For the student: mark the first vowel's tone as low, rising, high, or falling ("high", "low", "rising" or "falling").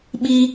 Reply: high